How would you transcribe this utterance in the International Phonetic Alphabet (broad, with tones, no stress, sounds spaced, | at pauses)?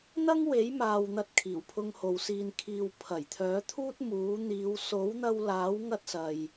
n̪ ɐ˥ ŋ w e˨˥ j m aː˨ w n̪ ɐ˧ t̚ kʰ iː˨˩ w pʰ ʊ˧ ŋ h o˨ w s iː˨ n kʰ iː˨ w pʰ ɐ˨˩ j t̪ʰ œː˨˥ t̪ʰ uː˥ t̚ m uː˨˥ n̪ iː˨˧ w s o˨˥ w n̪ ɐ˧ w l aː˨˥ w ŋ ɐ˥ t̚ s ɐ˧ j